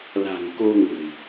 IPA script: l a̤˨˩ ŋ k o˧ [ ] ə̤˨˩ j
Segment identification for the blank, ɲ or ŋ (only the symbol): ŋ